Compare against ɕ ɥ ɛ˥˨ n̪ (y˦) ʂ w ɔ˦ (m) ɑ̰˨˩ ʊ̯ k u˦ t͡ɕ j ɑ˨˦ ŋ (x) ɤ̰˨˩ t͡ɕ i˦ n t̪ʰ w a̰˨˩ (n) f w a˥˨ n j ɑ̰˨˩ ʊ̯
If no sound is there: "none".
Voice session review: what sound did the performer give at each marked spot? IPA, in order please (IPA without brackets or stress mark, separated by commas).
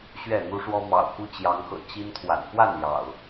u˦, m, x, n